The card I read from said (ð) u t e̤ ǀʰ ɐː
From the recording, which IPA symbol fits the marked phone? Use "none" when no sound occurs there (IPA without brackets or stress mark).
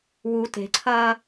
w